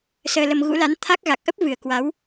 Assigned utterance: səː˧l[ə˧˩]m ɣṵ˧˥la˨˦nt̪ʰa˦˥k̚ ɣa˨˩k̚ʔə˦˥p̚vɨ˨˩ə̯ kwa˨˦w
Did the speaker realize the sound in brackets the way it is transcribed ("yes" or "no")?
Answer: no